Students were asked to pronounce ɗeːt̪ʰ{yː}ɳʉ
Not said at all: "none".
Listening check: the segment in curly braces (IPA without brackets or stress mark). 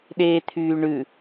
yː